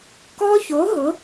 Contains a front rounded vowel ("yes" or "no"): no